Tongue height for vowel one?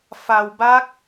low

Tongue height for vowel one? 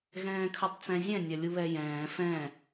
mid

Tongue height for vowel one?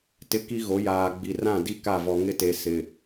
high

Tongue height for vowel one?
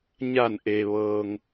low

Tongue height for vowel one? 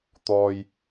mid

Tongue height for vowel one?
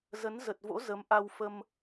mid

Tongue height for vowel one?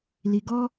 high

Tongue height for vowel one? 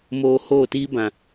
mid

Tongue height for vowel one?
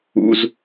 high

